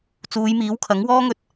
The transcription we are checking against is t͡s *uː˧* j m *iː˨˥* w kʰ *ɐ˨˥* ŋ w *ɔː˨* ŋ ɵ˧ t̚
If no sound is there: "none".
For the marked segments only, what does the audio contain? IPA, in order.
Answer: uː˨˧, iː˨˥, ɐ˨˥, ɔː˥

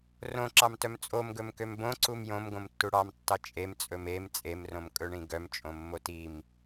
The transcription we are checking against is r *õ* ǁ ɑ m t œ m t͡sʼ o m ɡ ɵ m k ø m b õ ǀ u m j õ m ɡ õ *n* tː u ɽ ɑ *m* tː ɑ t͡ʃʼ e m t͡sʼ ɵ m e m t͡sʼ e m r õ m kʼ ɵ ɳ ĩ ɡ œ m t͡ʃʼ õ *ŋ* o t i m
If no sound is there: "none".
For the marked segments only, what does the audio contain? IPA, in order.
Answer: õ, m, m, mː

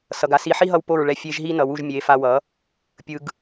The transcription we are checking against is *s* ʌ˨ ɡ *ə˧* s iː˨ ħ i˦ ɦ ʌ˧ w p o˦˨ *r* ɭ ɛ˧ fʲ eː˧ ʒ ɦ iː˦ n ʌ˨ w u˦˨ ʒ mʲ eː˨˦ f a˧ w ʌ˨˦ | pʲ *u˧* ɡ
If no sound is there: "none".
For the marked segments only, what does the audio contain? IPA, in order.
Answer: s, a˧, ɹ, ɯ˧

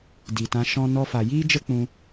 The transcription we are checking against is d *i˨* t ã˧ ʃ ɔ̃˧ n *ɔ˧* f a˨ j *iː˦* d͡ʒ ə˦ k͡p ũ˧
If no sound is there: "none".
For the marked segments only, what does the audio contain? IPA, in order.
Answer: i˨, ɔ˧, iː˦

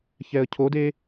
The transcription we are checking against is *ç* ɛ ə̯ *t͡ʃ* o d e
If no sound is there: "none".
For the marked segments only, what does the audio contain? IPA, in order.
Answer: ç, cʰ

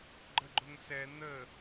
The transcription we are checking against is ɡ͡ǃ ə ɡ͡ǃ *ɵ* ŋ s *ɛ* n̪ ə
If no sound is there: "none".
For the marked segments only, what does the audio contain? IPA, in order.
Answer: ʊ, ɛ

